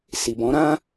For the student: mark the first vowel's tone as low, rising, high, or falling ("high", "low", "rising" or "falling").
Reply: low